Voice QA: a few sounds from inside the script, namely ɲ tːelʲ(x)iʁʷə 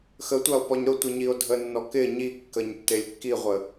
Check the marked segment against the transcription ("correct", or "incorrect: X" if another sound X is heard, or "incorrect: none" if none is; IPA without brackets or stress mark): incorrect: kː